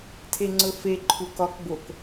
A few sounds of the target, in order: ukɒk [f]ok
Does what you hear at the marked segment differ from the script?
yes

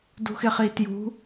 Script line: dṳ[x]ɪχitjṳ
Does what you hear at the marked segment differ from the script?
no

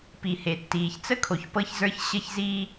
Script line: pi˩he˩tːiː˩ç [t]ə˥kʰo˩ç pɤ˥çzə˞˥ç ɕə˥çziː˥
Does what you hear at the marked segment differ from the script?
yes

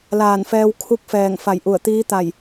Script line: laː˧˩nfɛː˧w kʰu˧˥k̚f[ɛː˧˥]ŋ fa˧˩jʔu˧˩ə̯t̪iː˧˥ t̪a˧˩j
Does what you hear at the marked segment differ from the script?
yes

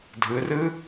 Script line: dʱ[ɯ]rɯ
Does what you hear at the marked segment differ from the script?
no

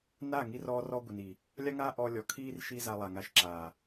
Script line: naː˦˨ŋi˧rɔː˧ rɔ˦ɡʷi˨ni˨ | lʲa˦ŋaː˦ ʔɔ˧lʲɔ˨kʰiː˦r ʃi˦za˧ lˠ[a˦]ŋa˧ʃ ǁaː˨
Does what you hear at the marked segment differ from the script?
yes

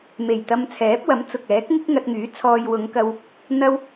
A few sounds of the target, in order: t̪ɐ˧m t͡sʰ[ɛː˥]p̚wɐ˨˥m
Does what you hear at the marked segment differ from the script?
yes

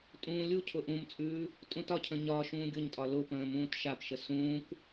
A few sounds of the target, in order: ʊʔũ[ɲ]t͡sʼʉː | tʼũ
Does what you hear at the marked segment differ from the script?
yes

